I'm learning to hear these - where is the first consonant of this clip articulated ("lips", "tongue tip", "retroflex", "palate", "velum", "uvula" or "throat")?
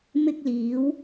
lips